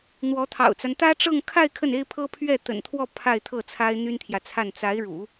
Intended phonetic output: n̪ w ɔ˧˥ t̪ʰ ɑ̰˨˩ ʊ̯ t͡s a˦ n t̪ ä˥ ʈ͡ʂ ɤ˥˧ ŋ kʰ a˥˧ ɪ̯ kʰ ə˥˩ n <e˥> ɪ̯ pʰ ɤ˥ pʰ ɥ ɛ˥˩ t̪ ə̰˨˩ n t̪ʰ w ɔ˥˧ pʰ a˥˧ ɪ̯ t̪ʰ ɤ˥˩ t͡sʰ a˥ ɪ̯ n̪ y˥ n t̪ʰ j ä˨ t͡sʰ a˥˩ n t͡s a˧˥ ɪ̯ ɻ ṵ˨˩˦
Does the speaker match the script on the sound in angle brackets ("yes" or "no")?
yes